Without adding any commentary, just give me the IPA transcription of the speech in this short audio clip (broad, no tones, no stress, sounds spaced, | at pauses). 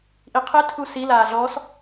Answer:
ʔ i qʰ e tʰ u s i l aː ɮ ɔ s